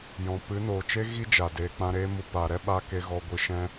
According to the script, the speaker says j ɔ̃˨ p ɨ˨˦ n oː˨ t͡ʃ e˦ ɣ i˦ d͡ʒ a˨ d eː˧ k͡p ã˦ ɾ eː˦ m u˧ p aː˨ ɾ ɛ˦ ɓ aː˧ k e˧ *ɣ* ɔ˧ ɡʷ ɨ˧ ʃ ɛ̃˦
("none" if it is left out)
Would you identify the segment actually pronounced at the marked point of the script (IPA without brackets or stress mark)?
ɣ